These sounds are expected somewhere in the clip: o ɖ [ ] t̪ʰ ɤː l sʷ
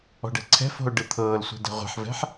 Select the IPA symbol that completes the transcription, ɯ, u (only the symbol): ɯ